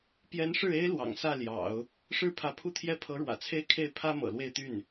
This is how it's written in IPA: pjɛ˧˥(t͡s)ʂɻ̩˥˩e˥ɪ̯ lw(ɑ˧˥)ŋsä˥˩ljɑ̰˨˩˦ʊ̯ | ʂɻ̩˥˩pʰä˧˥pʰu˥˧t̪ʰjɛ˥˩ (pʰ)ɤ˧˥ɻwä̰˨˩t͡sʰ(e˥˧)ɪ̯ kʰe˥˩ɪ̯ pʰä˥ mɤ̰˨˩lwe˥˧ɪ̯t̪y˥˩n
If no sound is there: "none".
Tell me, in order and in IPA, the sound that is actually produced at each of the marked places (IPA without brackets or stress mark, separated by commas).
n, ɑ̰˨˩, pʰ, e˥˧